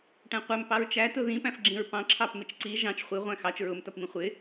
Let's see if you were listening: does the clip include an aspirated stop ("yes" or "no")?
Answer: yes